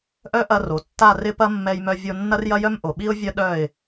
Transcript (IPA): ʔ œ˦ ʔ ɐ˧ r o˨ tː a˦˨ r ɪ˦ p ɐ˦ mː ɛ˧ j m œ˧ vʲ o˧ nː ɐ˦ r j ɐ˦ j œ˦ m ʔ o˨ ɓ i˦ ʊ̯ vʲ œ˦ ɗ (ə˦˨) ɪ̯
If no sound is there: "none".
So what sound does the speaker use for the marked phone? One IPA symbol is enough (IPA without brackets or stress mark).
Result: œ˦˨